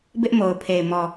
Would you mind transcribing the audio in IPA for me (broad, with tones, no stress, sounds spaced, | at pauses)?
b ɪ˦ ʔ m o˨ ʊ̯ pʰ e˨ ɪ̯ m ɔ˨